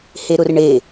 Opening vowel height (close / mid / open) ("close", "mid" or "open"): mid